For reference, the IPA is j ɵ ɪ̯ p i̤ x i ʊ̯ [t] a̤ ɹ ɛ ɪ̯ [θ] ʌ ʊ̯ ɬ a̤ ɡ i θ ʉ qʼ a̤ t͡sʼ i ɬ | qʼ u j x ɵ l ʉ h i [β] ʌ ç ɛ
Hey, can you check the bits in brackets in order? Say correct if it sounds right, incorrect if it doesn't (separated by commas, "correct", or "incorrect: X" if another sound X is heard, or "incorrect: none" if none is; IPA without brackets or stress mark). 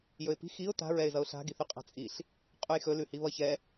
correct, incorrect: z, correct